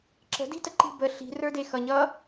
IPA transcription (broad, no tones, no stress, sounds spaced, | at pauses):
ǁ ə̤ d i̤ t ə ǃ i̤ b ə ɬ i̤ r ə˞ d e x ʌ ɲ ʌ